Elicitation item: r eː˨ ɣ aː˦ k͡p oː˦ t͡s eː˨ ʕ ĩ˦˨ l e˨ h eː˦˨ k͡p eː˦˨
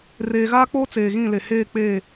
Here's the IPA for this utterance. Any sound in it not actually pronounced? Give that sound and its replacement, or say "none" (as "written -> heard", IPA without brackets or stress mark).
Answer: ʕ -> ɣ